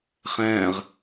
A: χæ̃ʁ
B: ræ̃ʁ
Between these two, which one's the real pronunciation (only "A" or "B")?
A